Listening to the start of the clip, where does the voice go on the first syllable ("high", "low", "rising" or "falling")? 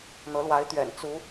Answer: rising